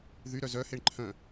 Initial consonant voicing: voiced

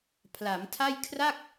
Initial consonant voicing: voiceless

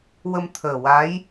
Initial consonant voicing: voiced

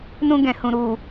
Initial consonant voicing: voiced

